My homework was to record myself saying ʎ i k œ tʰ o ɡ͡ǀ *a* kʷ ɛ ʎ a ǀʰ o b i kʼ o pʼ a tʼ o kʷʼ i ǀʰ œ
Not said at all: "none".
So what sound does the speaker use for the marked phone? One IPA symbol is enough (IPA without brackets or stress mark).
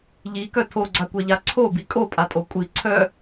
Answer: a